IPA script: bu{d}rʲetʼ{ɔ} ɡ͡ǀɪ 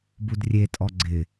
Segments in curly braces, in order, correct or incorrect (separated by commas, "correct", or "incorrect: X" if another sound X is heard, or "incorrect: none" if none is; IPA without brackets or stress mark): correct, correct